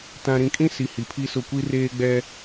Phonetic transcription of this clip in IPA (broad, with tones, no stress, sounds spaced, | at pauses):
t ã˨ ɾ ĩ˨ kʼ ĩ˦ s i˨ h i˨ pʰ i˦ s ʊ˦˨ kʷ i˦ r eː˦ ɡ͡b ɛ˦